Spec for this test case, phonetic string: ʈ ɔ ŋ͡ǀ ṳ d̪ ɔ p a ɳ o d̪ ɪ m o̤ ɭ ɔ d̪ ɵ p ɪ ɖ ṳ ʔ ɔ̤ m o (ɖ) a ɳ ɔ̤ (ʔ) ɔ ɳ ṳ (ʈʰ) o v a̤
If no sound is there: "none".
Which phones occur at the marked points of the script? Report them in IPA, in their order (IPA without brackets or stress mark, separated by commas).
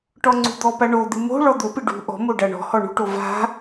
ɖ, h, ʈ